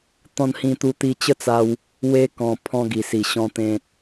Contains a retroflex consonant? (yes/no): no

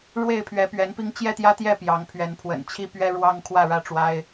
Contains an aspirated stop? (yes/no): yes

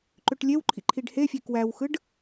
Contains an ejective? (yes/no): no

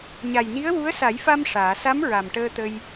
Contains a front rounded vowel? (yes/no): no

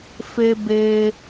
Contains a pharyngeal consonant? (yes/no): no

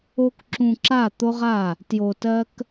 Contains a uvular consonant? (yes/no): yes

